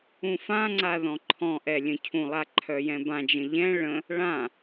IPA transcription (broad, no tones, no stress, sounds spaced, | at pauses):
ũ f ã ŋ͡ǀ a ð ɔ̃ ǃʰ ɔ̃ ʔ ɛ lʲ ə̃ cʰ ũ lˠ a ǃʰ œ j ɛ̃ b ã d͡ʒ ə̃ ʎ ɛ̃ ɭ ə̃ | ɭ ã